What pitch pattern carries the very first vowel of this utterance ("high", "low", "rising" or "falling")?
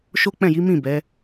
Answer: high